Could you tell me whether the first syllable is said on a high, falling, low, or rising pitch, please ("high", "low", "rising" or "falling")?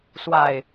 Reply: low